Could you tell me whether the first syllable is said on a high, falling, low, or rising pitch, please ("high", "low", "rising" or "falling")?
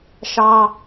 high